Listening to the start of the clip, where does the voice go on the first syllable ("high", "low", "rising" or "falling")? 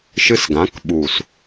high